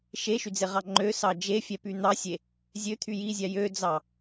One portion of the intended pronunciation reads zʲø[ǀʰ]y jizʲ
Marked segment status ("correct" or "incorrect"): incorrect